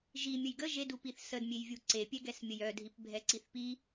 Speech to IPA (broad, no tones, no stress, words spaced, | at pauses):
ʒi mʲəjɡə ʒedu piθsədmʲej vʲuǀepʲɛɡɛs mʲəjœdʱip bʱɛǀiθpi